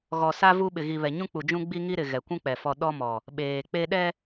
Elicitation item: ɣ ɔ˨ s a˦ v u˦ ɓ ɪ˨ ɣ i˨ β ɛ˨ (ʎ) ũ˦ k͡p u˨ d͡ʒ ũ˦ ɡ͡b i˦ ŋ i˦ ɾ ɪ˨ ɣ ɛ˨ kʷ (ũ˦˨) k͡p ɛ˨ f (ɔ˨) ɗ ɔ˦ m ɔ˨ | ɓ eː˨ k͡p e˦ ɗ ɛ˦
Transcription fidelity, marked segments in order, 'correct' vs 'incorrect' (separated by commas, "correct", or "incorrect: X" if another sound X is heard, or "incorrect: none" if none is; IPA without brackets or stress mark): incorrect: ɲ, incorrect: ũ˦, correct